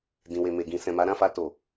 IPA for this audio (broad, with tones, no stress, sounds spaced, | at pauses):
d ĩ˨ w e˨ m e˨ ɡ ĩ˨ s ɛ̃˨ m a˨˦ ɾ ã˦˨ f a˧ t o˨